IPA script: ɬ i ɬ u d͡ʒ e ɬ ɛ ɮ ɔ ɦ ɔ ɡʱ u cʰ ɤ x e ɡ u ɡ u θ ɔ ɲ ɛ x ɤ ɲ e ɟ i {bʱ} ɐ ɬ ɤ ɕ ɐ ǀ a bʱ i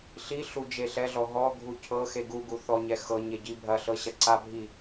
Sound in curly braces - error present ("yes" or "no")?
no